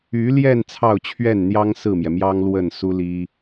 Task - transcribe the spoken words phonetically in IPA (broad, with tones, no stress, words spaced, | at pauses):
y˧˥ljɛ˥˧n t͡sʰɑ˥˧ʊ̯t͡ɕʰɥɛ˥˩nn̪jɑ˥ŋ sɹ̩˥˩mjɛ˩mjɑ˥ŋ lwə˥˩n su˥li˥